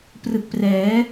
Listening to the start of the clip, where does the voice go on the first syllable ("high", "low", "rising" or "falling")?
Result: low